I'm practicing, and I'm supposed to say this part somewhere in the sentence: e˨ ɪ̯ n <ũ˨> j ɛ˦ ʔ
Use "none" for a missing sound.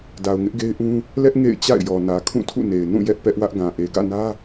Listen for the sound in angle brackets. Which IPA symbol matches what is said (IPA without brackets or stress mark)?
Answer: ũ˦˨